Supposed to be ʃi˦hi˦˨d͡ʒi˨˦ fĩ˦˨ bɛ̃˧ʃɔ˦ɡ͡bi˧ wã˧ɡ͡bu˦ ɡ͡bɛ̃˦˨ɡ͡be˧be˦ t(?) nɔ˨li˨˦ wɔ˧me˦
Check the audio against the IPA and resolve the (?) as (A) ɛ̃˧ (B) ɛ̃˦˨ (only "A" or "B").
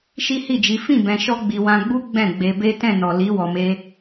B